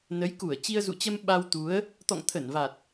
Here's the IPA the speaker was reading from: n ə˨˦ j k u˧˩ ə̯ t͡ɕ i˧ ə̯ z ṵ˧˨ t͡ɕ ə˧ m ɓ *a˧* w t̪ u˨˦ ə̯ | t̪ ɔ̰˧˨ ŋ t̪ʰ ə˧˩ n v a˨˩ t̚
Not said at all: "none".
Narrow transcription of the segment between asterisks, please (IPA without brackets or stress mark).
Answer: a˧